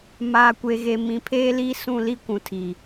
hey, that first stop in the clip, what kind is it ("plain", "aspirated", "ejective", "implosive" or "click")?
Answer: plain